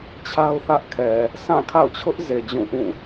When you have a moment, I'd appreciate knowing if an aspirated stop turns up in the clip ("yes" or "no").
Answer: yes